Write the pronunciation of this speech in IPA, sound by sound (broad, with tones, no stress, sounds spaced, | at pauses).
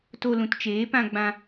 t o˧ l ũ˨ t t͡ʃ eː˨˦ p ã˧ ɡ͡b ã˧